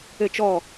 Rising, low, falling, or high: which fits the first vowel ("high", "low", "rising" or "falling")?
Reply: falling